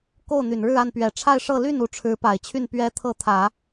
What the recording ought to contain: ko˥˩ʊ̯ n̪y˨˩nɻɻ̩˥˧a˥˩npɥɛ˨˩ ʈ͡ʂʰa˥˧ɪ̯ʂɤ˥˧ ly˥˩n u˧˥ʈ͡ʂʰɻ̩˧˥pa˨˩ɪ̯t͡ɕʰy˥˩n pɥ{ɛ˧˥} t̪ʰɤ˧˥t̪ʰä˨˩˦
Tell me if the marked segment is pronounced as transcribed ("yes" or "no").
yes